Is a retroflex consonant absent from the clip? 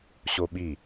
yes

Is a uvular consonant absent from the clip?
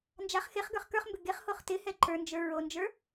no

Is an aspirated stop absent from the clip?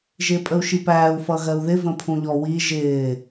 no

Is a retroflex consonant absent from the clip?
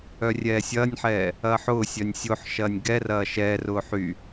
yes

